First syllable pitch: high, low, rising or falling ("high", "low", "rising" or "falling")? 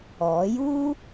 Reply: rising